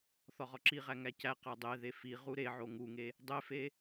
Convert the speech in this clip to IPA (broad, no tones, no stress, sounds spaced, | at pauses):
θ ɒ ʁ ɒ ǁ i ʁ æ ŋ æ c æ q æ dˤ e ð e f i ʁ u ɾ e ʕ o ŋ u ŋ e | dˤ e f e